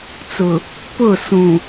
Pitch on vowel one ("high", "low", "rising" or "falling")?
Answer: low